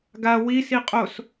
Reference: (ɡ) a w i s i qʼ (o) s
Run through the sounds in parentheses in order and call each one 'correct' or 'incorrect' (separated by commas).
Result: correct, correct